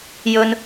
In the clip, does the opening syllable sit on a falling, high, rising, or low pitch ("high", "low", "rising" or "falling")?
high